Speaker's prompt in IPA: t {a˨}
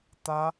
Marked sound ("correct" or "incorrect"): incorrect